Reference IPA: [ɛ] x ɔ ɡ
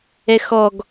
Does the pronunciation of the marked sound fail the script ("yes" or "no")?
no